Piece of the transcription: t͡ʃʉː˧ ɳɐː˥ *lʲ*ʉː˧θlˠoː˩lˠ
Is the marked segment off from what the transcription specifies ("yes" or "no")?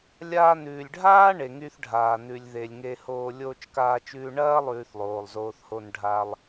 yes